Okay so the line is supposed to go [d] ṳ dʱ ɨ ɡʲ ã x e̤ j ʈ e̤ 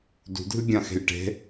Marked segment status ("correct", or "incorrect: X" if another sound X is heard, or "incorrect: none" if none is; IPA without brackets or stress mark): correct